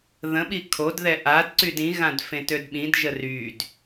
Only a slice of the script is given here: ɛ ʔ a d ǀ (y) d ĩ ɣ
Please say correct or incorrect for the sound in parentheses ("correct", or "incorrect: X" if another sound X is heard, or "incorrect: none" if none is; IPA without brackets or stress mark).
correct